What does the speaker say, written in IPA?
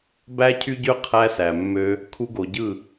b æ˧ cʰ y˧ ɟ ø˧ qʰ æ˧ s æ˨ mː ø˦ | kʰ u˦ ɡ o˧ ɟ ɯ˦˨

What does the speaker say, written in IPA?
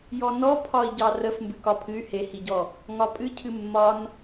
j ɔ n ɔ pʰ ɒ i̯ ɟ ɑ r ə f m b ɨ k ɒ pʰ ɨ y̯ h e h i ɟ ɔ | ŋ ɒ pʼ ɨ cʰ ɨ mː ɒ n

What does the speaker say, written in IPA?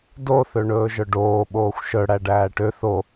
d o θ ø ɳ ɵː ʒ œ ɖ oː ɓ oː xʷ ʃ œ ɽ æ ɖ æː ʈ ø θ o

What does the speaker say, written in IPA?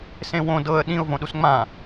s ẽ w õ d ɤ ə̯ ɗ ĩ ʊ̯ v õ ɗ u s ŋ͡m ã

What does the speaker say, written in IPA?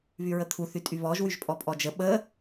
β y ɹ ə t̪ʰ u θ y tʼ y β ɔ ʒ w y ʒ pʼ ɔ pʼ ɔ d͡ʒ ə ɓ ə

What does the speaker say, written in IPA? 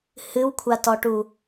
h ɨ w kʷʰ a t ɔ ʈ u

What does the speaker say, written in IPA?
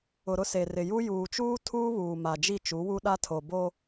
ʊ˨ ɾ ʊ˦ s e˨ r ɪ˨ j u˦ j uː˨ t͡ʃ uː˦ tʰ uː˦ β uː˨ m a˨ d͡ʒ i˦˨ t͡ʃ u˨˦ w u˦ ɗ a˦ tʰ o˨ b o˦

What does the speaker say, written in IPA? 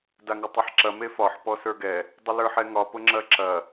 d a ŋ ʊ tˤ i ħ ǁ ɐ m e f ɒ ħ p ɔ s ə˞ ɡ ɛ | dˤ ə l ə˞ ħ ɛ ŋ ɒ p ʊ ŋ͡ǁ ɐ ǁ ɐ

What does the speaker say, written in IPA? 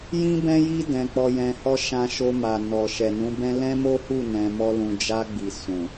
j ĩ˦ b ɛ̃˦ j i˦ d ɛ̃˧ k͡p ɔ˧ j ɛ̃˧ h ɔ˦ ʃ ã˧ ʃ o˧ m a˨ n ɔ˨ ʃ ɛ˨ n ũ˨˦ b ɛ̃˦ l ɛ̃˦ m o˦ h u˦˨ n ɛ̃˧ m ɔ˦ l ũ˧ d͡ʒ a˧ ɡ͡b i˨ s ũ˨

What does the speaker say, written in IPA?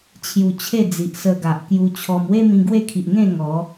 t͡ɕʰ j u˧ t͡ɕʰ e˥˧ d͡z i˨ ʔ s ə˧ ɡ a˨ ʔ k j u˧ t͡ɕʰ ɔ˧ m w e˦ m ĩ˧ ɡ w e˥˧ kʰ i˨ ʔ ŋ ẽ˥˧ ŋ ɔ˨˦

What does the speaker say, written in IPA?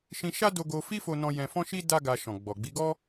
ʃ ĩ˧ ʃ a˦ d o˧ ɡ o˧ f i˦ f o˧ n ɔ̃˧ j ɛ̃˧ f ɔ̃˦ ʃ i˦ d a˦ ɡ a˧ ʃ ɔ̃˨ ɡ͡b ɔ˨ ɡ͡b i˨˦ ɡ ɔ˦

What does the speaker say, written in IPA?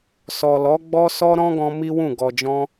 s ɔ˨ l ɔ˨˦ ɡ͡b ɔ˦ s ɔ˦ ɾ ɔ̃˦ ɡ ɔ̃˧ m i˦ w ũ˦˨ ɡ ɔ˨ d͡ʒ ɔ̃˧

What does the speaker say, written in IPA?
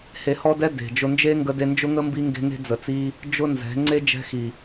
h e˧ h ɔ˦ d ɛ˦ d e̤˨ d͡ʒ ʊ˧ n d͡ʒ e˦ ŋ ɡ ə˦ d e˦ n d͡ʒ ʊ˦ ŋ ə˦ m b i˦ ŋ ɡ e̤˦ ŋ e̤˦ d͡z ə˨ t͡s i˦ | d͡ʒ ʊ˦ n z ɛ̤˨˦ ŋ͡ǀ e˦ d͡ʒ ɛ̤˦ x i˨

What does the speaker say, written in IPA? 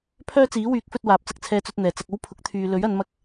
pʰ œː˥ t͡s iː˨˥ w yː˨˥ k̚ f ɵ˧ t̚ w aː˨˥ p̚ t͡s ɐ˨ k̚ t͡sʰ ɛː˧ t͡s ɵ˧ t̚ n̪ ɛː˨˩ t͡s ɐ˧ k̚ o˥ w pʰ ʊ˨˥ k̚ t̪ʰ yː˨ l ɵ˨˥ ɥ ɐ˨˧ n m ɐ˧ k̚

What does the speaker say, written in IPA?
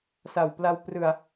s a˨˩ w p l a˧ w p r ɯ˧ a̯

